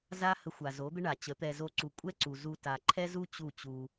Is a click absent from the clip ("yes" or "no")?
no